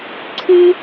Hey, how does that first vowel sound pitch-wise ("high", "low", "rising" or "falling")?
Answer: high